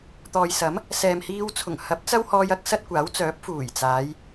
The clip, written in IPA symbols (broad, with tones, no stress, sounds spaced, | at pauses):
t̪ ɔː˨ j s ɐ˨˥ m | s ɛː˨ m h iː˧ w t͡sʰ ʊ˨˩ ŋ h ɐ˨˥ p̚ t͡s ɐ˥ w h ɔː˧ j ɐ˥ k̚ s ɐ˥ t̚ kʷ aː˨˥ w t͡s œː˨˥ p̚ f uː˨˩ j t͡s aː˨˧ j